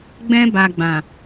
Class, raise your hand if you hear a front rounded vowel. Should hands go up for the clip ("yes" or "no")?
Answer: no